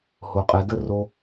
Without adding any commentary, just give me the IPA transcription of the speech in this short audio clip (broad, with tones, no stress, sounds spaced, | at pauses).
h o˧ qʼ ɛ˧ d ə˦ r o˦